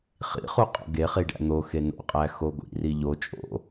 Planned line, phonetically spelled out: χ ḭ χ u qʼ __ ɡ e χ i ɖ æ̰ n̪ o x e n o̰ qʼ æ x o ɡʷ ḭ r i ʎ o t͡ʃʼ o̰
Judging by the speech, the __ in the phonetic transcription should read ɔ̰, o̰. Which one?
o̰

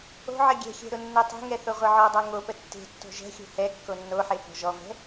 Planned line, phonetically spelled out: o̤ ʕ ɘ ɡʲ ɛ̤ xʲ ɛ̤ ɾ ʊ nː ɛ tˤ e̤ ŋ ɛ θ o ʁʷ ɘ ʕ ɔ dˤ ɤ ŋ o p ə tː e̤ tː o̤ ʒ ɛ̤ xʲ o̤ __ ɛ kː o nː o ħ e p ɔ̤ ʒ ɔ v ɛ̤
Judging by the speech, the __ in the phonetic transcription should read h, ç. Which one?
h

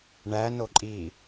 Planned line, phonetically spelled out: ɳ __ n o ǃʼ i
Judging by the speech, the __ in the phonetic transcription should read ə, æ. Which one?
æ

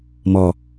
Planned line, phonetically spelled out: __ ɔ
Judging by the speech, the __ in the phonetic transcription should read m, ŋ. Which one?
m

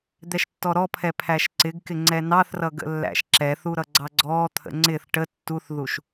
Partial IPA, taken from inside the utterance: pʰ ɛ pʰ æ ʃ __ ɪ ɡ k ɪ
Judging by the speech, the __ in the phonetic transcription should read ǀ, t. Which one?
ǀ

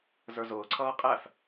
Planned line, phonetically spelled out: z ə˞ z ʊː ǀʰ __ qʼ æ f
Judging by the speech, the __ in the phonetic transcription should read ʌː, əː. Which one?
ʌː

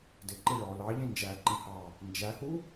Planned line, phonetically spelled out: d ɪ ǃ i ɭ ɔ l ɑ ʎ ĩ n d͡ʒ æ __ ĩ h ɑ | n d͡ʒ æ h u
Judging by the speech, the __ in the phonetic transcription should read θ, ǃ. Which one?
ǃ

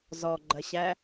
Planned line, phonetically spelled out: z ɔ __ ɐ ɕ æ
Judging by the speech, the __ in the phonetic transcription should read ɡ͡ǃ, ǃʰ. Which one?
ɡ͡ǃ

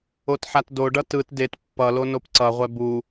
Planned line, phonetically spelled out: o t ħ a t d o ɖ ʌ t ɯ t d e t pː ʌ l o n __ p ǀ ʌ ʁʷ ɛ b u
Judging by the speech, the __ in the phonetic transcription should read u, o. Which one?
o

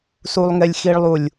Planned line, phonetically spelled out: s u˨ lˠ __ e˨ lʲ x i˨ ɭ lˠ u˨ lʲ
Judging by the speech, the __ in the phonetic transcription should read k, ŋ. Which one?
ŋ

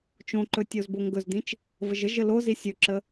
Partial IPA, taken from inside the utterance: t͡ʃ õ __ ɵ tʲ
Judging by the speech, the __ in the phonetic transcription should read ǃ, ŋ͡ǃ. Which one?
ǃ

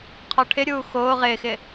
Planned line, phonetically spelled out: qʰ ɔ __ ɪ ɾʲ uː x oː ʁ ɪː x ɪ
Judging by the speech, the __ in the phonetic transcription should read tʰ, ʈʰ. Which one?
ʈʰ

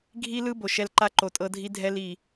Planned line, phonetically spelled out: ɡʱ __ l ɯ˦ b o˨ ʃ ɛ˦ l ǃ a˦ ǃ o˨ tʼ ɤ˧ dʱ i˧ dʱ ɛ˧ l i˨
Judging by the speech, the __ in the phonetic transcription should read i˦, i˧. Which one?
i˦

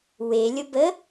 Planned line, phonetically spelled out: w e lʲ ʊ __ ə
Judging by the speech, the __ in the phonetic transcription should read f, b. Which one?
b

